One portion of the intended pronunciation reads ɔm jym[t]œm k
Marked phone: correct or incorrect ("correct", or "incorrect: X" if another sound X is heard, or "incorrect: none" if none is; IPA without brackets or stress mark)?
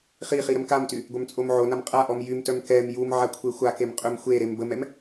correct